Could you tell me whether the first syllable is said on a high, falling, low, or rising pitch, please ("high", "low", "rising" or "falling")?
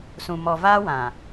low